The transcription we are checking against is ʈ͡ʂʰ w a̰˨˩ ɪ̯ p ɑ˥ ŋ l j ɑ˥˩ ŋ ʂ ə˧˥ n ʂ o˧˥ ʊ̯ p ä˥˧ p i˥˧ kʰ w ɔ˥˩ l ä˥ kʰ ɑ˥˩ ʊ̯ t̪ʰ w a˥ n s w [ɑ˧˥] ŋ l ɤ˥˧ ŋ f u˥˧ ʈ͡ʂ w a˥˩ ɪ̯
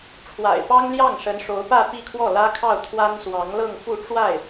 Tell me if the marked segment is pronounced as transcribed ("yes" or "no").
yes